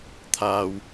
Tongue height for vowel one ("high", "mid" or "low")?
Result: low